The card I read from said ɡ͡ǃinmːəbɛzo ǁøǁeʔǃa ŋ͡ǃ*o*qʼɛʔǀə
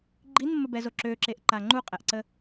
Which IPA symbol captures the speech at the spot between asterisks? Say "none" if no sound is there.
u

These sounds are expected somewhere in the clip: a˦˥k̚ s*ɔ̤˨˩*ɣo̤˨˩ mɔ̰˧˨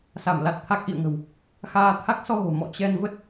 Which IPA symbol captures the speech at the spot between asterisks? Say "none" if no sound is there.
ɔ˧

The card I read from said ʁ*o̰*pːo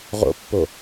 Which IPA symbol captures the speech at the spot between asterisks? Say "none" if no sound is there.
o̰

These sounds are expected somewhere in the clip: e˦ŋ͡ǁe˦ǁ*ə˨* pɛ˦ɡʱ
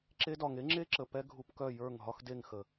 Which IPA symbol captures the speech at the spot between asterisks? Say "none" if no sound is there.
ə˨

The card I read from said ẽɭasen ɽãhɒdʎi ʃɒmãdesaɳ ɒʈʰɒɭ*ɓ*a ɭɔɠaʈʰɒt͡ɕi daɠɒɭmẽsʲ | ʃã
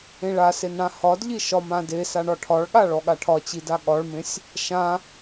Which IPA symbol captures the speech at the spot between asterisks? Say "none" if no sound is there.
ɠ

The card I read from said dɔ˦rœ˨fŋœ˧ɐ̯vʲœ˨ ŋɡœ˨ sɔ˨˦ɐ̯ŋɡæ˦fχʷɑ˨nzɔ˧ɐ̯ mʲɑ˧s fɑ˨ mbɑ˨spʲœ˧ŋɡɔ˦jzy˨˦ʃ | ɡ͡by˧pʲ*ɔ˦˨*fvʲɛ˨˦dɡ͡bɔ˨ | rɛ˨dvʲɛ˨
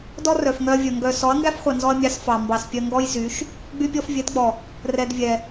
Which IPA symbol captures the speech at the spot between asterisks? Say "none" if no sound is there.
ɔ˧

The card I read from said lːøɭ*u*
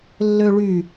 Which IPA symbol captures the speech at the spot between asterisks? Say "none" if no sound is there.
y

